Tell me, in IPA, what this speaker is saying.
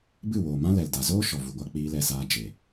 b ɨ˦˨ w oː˨ m ã˦ l ɛ˨ l d a˨ z oː˦ ʃ ɔ˨ v u˨ ɡʷ a˧ k͡p iː˧ l ɛ˧ s aː˧ d͡ʒ e˨

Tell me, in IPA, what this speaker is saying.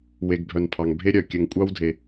w e˩ ɡ bʱ œ˩ n pʰ ɑ˩ ŋ bʱ e˦ ɾʲ œ˩ kʲ ɘ˨ ŋ kʷʼ ɑ˥ w dʱ e˩

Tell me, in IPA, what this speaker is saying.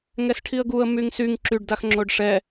ŋ ɛ s ʈʰ i ə̯ ɡ u ə̯ m y ŋ s y ŋ ǁ y ɖ d a x ŋ͡ǁ o ɖ ʂ ɛ

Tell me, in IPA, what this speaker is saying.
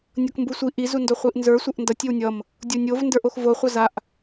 nʲ ʌ k m b u sʷ i ʔ i z u n d o χʷ i ʔ n z ə˞ sʷ ʌ ʔ n d ʌ tʲ ɪ w nʲ ʌ m | dʲ o nʲ o v n d ə˞ ʔ o x v o χʷ ʌ z a ʔ

